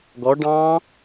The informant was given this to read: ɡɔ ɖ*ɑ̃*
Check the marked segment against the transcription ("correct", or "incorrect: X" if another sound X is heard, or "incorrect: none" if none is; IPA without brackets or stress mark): correct